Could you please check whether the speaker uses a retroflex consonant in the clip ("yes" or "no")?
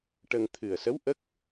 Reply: yes